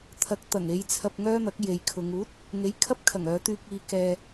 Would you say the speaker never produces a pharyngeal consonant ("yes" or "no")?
yes